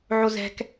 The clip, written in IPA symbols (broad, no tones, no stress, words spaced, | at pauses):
ʕozɛ̤k